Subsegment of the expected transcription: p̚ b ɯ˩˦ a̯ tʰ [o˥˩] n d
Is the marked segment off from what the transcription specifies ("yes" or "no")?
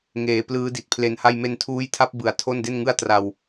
no